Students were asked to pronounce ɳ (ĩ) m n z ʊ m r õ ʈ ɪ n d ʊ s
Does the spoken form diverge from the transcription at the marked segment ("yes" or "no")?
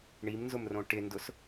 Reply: yes